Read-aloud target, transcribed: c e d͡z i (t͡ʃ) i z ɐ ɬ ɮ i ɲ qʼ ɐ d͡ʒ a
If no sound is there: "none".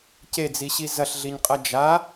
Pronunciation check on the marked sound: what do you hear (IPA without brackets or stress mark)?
ɕ